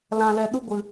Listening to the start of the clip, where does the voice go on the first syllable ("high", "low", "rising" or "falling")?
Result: low